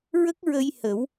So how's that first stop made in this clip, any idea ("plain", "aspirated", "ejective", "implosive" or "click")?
plain